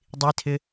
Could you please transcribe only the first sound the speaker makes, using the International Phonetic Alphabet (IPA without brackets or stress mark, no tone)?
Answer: dˤ